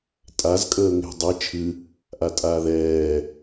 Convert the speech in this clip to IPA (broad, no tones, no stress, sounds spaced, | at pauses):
tʼ a z kʼ əː ŋ e̤ dˤ i t͡ʃʰ ɨ | ʔ a tʼ aː ð ɛː